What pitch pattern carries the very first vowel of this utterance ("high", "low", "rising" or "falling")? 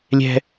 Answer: high